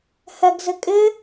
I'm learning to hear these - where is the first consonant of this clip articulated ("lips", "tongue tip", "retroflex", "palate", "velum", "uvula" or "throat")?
throat